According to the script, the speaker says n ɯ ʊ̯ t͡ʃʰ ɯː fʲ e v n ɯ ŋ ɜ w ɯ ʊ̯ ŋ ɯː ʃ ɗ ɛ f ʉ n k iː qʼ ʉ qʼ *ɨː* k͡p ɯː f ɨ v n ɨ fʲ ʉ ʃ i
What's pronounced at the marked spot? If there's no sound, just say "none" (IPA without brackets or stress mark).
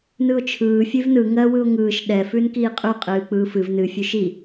ɨː